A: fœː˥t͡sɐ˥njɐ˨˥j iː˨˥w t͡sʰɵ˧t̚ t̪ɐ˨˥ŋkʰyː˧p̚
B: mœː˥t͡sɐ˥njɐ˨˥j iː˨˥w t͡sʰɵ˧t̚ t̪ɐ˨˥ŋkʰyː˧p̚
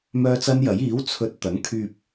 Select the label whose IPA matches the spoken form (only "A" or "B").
B